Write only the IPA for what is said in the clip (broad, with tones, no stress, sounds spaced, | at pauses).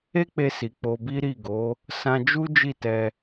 e˦ k͡p e˧ s i˨ k͡p o˧ b i˦ ɾ i˦˨ ɡ o˨˦ | s ã˧ d͡ʒ u˦ d͡ʒ i˦˨ t ɛ˧